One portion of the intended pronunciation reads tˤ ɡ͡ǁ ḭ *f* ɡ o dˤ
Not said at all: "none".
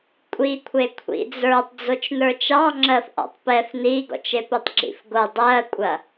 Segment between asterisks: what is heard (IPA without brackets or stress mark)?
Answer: f